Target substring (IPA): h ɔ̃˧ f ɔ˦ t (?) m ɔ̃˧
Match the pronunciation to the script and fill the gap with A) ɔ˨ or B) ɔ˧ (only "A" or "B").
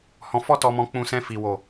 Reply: B